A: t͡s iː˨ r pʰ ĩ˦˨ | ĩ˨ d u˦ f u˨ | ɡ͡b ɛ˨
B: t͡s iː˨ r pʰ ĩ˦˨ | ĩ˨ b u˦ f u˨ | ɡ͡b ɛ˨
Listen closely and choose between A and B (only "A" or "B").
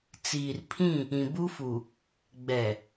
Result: B